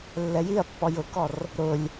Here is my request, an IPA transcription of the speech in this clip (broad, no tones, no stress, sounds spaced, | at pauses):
lː ɛ j i ɐ̯ pː ɔ j ʊ k ɔ r | ɾ ʊ lʲ